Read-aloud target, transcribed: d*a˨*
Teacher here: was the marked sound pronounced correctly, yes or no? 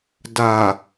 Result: yes